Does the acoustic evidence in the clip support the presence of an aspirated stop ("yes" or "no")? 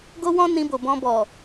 no